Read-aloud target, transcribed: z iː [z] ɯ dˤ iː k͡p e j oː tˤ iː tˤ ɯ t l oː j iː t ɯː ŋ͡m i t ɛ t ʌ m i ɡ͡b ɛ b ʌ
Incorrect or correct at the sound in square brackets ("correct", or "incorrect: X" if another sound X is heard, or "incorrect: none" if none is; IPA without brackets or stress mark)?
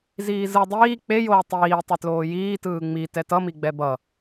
correct